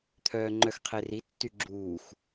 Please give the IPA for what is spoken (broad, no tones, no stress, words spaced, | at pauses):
t̪ʰœːŋ͡ǃœxqʰeri tːyɡ͡ǁuːx